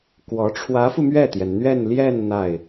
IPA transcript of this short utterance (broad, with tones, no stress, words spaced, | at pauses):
kwɔ˧˥ ʈ͡ʂʰwä˧˥fu˧mɥɛ˥˩t̪jɛ˩n n̪ɥɛ˥˧nljɛ˥˧n n̪a˥˩ɪ̯